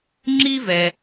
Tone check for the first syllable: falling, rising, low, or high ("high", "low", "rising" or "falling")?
high